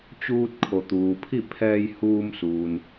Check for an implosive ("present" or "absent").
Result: absent